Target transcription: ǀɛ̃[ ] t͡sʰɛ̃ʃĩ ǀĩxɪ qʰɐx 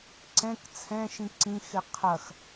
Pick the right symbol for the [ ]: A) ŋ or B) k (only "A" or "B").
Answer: B